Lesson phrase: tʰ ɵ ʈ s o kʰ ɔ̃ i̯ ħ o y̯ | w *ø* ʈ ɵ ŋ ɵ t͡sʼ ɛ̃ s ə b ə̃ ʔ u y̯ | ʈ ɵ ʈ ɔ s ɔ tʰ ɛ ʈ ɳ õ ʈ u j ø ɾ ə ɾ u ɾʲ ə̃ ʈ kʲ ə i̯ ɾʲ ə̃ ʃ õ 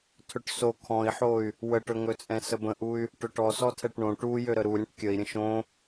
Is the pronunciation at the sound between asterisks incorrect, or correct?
incorrect